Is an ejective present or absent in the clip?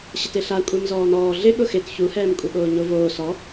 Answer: present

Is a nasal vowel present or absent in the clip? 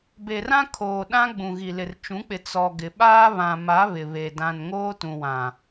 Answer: present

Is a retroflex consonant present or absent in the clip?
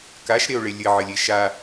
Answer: present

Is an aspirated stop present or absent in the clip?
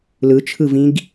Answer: present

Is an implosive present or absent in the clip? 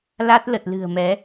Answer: absent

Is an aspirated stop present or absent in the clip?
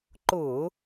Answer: absent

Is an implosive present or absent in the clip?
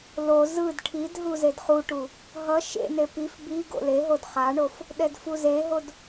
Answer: present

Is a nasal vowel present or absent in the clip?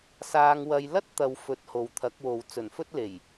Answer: absent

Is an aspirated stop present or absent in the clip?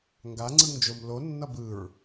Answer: absent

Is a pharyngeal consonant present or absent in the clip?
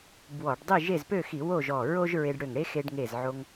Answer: present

